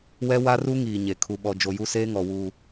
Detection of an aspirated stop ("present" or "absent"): present